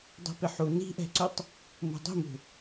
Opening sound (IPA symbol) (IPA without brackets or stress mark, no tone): dˤ